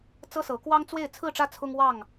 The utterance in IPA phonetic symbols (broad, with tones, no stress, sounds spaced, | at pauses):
t͡s ɤ˦ s ɤ˨˦ k w ɑ˦ ŋ t͡s w e˥˨ ɪ̯ t͡sʰ ɹ̩˥˨ ʈ͡ʂ ä˥˨ t͡sʰ ʊ˦ ŋ w ɑ˥˨ ŋ